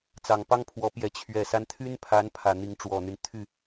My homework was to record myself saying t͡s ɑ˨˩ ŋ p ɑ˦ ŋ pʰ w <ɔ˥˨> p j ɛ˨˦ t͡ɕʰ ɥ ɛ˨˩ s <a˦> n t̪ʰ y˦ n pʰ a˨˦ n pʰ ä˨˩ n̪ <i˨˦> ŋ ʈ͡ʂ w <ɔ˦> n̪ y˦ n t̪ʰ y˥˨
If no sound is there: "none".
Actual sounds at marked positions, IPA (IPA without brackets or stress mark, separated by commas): ɔ˨˦, a˦, i˨˦, ɔ˨˩